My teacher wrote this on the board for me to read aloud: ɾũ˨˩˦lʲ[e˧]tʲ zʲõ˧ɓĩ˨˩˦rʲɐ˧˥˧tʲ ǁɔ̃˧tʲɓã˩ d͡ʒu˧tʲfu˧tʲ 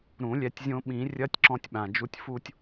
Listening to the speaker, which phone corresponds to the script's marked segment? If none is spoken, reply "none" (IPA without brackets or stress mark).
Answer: ɛ˧